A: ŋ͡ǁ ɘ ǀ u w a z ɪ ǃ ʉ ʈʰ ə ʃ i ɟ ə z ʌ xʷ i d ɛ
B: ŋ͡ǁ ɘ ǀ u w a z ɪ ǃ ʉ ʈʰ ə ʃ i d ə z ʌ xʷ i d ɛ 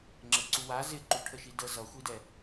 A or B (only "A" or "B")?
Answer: B